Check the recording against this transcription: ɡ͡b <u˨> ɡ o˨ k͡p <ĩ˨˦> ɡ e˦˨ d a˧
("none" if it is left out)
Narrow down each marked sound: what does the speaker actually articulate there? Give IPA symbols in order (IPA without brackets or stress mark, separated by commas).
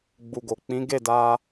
u˨, ĩ˨˦